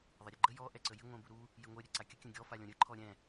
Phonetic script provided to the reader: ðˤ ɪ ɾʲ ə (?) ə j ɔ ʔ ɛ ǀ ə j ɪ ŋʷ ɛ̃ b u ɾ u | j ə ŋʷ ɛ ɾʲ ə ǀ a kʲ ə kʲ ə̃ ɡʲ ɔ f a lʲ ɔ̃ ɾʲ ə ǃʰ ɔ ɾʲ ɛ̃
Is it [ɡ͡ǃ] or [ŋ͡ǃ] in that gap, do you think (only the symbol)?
ɡ͡ǃ